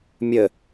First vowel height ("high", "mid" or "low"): mid